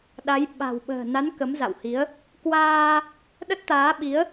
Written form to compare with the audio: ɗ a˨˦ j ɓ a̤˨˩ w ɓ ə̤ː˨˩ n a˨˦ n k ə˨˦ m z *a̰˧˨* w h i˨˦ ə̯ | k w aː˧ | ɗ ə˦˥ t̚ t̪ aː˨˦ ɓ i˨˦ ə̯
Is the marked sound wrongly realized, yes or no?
no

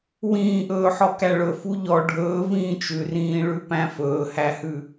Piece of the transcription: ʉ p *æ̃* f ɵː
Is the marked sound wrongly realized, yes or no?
no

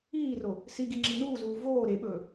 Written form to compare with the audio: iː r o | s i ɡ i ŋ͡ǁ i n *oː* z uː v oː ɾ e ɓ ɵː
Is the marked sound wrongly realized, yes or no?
yes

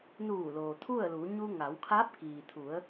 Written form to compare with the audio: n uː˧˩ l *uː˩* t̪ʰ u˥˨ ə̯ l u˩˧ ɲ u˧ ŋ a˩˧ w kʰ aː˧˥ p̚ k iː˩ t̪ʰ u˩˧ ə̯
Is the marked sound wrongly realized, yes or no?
yes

